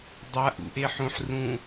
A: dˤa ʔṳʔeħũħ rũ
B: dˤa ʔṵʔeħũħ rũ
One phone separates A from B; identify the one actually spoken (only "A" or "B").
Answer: B